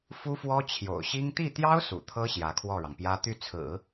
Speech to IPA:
f u˥ f w ɔ˥ t͡ɕʰ j o̰˨˩ ʊ̯ ɕ i˥ ŋ t̪ i˥˩ t̪ j ɑ˥ ʊ̯ s ṵ˨˩ t̪ʰ ɤ˥ ɕ j ä˧˥ kʰ w ɔ˥˩ ɻ ɑ˩ ŋ p j ä˥ t̪ y˥˩ t͡sʰ ɹ̩˨˩˦

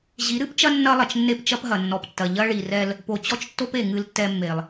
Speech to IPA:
ʑ i˨˦ ɾ ɨ˦ p t͡ʃ ɐ˦ nː ɐ˦ lˠ ɐ˨ t͡ʃ nː e˦ p t͡ʃ ɐ˦ p ɦ ɐ˨ nː ɔ˨ p tː ɐ˨ ʎ ɐ˦ ɭ i˨ r ɛ˦ l | p o˨ t͡ɕ ɔ˦ t͡ʃ tː o˦ p e˨ ŋ ɨ˦ l tː ɛ˦ mː e˨ lˠ

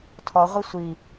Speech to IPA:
tʰ ɔ ʁʷ i sʷ i

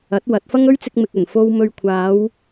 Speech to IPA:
ɐ˨˥ t̚ w ɐ˨˥ t̚ f ɐ˥ ŋ ɵ˥ ɥ t͡s ɪ˧ k̚ m ɪ˨ k̚ ɵ˨˩ n f o˧ w m ɵ˨ ɥ kʷʰ aː˨˧ w

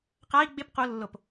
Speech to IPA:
q a i̯ ɡ͡b ɪ p q o lː o p

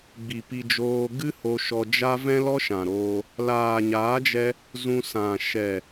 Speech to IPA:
ɡ͡b i˨ p i˧ d͡ʒ oː˧ ɡ ɨ˦ h o˧ ʃ ɔ˧ d͡ʒ a˦ v ɛ̃˦ l ɔ˦ ʃ ã˨ ɾ oː˧ | l aː˨ ɲ aː˨˦ d͡ʒ ɛ˧ | z ũ˧ s ã˨ ʃ ɛ˨

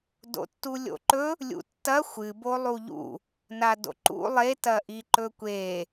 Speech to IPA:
d o̰ tː u lʲ o̰ ǃ ɵ | lʲ ṵ tː ɐ xʷ ɨ b o lˠ u ʎ ṵ | n a d o̰ ǃ ṵ lˠ e t ɐ ʔ i ǃ ɵ kʷ e

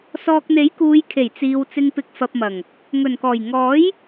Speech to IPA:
s ɔː˨ k̚ n̪ e˨˥ j k uː˨˧ j kʰ e˨˩ j t͡s iː˨ w t͡s ɪ˧ ŋ p ɪ˧ k̚ f ɐ˧ p̚ m ɐ˨˩ ŋ | ŋ ɵ˨˩ n k ɔː˨˩ j ŋ ɔː˨˥ j

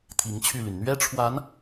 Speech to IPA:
t̪ʰ i˧˥ ŋ t͡ɕʰ y˥˩ l y˩ n n̪ ɥ ɛ˥ ʈ͡ʂʰ w a˧˥ n

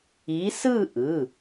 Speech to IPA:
i˨˦ s ɯ˥˧ ʔ ɯ˩˧˩

